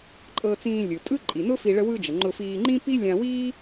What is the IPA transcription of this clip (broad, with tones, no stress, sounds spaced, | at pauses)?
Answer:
ǃʼ ɤ˧ t͡s ĩː˧ lʲ ɯ˩ tʼ ɯ˥ ǃʼ i˩ n ʊ˥ f i˧ ɭ ə˧ w ɯ˧ d͡ʒ ə˩ ŋ͡ǃ ʊ˧ f iː˧ ŋ͡ǃ ĩ˥ p i˥ lʲ ã˧ w iː˥